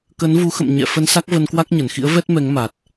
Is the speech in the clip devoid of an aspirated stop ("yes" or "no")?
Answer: yes